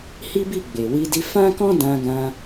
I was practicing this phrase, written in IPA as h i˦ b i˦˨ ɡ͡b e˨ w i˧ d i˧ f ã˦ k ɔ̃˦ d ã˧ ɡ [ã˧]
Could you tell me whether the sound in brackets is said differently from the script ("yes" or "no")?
no